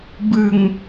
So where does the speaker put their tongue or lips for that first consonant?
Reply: lips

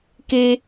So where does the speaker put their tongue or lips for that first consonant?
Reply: velum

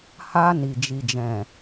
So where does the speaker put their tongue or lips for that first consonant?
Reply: throat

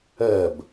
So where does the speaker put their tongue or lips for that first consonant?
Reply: lips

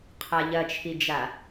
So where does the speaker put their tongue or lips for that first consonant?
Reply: uvula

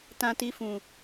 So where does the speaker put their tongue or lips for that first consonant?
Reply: tongue tip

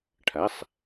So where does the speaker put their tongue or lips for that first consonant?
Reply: retroflex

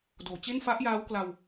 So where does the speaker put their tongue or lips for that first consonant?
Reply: tongue tip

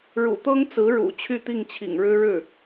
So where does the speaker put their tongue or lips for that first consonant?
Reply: retroflex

